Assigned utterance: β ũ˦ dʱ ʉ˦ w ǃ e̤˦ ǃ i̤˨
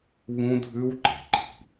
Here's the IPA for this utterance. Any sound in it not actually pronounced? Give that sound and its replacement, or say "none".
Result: e̤˦ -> e̤˨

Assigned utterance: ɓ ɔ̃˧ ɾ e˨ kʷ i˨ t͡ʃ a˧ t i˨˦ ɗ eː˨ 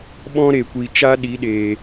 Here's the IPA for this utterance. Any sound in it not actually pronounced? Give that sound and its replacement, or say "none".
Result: t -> ɗ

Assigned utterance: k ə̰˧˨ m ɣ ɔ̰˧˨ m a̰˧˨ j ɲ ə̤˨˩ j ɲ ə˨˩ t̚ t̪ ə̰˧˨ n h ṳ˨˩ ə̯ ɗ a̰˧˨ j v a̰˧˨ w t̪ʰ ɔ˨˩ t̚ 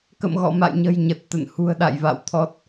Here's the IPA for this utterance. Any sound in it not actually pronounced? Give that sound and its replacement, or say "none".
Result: none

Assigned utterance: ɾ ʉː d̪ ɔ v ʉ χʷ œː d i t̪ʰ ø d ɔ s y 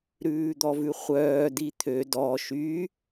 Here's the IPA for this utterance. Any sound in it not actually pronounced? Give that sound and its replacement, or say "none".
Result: s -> ʃ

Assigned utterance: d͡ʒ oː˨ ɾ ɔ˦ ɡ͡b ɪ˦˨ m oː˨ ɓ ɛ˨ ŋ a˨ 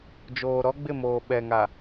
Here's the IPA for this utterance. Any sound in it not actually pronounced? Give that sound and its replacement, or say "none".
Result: none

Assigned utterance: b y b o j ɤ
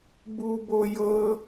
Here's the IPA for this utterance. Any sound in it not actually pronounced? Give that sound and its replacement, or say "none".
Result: y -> u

